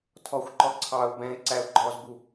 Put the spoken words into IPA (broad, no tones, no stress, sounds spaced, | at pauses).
tʰ ɔ xʷ ǃ ɔ ǀʰ ɑ ʊ̯ b ɛ̃ ɪ̯ ǀ æ ʊ̯ ɡ͡ǃ ɔ z b u